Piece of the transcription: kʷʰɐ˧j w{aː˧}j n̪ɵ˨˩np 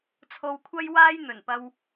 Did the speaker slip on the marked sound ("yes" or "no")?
no